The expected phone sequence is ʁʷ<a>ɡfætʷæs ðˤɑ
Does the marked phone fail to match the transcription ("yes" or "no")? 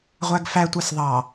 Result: yes